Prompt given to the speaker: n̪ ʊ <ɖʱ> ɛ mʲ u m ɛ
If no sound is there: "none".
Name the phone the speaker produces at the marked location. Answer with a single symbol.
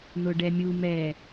ɖ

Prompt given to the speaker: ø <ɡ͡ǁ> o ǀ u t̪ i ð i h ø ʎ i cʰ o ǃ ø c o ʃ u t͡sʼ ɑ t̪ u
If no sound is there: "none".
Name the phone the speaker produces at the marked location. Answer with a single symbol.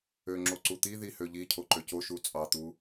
ŋ͡ǁ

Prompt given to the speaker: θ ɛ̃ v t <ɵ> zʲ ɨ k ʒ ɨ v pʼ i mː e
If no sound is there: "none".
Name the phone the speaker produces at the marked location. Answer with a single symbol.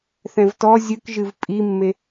ɔ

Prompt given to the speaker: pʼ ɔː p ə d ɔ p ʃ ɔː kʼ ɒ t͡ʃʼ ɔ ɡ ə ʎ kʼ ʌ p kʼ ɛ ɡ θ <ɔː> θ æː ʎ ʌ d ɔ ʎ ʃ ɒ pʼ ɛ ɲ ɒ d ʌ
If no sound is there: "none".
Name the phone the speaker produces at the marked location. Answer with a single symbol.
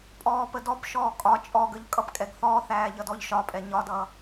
ɔː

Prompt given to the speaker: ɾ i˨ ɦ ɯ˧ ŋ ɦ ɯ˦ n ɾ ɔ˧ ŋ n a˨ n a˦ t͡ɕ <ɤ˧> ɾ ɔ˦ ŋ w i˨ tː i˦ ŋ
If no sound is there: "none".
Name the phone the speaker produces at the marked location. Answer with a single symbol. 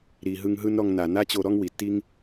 o˧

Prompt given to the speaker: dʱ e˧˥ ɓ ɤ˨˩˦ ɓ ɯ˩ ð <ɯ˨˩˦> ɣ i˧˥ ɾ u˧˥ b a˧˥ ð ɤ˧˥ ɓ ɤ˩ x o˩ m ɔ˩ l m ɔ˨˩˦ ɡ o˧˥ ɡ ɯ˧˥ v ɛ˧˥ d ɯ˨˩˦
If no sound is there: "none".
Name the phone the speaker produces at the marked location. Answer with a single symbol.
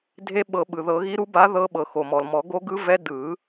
ɤ˨˩˦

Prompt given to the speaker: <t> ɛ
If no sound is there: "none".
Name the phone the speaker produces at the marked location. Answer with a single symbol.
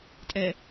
tʼ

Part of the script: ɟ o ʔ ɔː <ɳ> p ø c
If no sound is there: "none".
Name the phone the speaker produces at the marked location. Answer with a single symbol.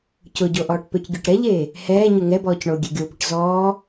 ʈ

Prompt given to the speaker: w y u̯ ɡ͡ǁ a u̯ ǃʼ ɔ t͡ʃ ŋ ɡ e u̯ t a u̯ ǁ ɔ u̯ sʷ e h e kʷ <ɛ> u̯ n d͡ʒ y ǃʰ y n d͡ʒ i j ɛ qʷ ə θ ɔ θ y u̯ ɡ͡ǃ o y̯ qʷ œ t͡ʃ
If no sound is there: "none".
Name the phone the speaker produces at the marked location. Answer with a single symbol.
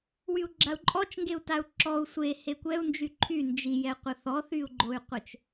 ɛ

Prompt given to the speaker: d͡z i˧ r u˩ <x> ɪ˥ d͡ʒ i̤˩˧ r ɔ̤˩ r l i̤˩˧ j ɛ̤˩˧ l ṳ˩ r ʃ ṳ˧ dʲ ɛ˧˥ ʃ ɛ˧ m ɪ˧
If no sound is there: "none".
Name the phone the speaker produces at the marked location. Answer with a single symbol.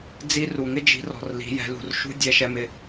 ŋ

